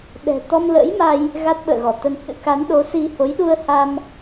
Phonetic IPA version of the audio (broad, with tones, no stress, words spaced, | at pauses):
ɗɛ̤˨˩ t̪ɔ˧mlə̰˧˥jma˧j | ɣa˦˥t̚ɓə̰ː˧˨ɣɔ˧˩t̪ə˧n hɨ̰˧˥ka˨˦nɗo˨˦si˧ ho˨˦jɗu˧ə̯ha˧m